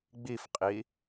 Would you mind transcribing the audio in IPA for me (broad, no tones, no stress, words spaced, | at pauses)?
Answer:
ɡ͡bifqʼi